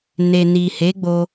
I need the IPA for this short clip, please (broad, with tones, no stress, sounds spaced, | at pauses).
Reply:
n e˨ n i˨ h e˨˦ ɡ͡b o˧